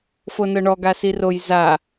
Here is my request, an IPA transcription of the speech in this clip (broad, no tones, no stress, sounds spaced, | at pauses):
f o n ɤ ɳ ɔ ɡ a s i r o j z a